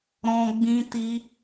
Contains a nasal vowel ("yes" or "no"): yes